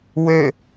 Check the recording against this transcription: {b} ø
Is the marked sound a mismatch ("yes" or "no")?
yes